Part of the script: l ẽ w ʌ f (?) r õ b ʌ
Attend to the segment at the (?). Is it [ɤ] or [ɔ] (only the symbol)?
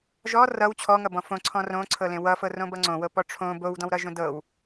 ɤ